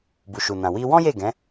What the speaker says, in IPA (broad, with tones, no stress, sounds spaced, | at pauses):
b u˨ ʃ u˨ n ã˨ w i˧ w ɔ̃˦ j e˦˨ ɡ ɛ̃˨˦